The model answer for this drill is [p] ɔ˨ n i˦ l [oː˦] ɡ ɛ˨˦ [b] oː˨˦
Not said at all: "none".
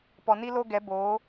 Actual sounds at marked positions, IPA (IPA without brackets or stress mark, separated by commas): p, o˦, b